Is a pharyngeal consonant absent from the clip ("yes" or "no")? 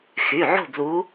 no